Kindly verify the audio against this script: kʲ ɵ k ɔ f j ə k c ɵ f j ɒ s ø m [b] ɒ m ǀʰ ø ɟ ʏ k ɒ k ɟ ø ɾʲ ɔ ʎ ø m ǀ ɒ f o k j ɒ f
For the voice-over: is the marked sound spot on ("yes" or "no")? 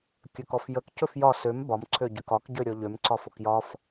yes